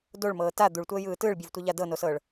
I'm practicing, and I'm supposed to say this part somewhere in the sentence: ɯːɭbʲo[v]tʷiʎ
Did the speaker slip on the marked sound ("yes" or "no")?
no